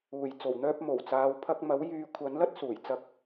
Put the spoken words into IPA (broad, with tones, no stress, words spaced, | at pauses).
uː˨˩jt͡so˨˩wn̪œː˧p̚ mo˨˩w t͡saː˨wpʰɐ˧k̚mɐ˨˥w jyː˨kʷʰɐ˨˥nlɐ˥t̚ suː˨˩jt͡sɐ˧k̚